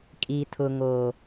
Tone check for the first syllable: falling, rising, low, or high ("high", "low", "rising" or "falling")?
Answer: low